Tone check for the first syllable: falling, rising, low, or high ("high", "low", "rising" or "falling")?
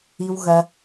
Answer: low